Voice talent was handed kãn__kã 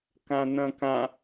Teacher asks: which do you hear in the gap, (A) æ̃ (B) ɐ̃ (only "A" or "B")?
B